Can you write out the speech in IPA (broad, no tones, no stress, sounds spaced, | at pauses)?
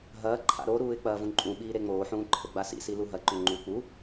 ɦ ɐː ǃʰ a̰ ɾ o ɾ uː ɪ̯ k͡p ɐː v ũ ǃʼ ũ ɓ iː ɾ e ŋ͡m oː ħ ũː ǃʰ ɘ ɡ͡b a s ḭ s i l u ɦ ɐ ǃ o ŋ͡ǃ u k͡p u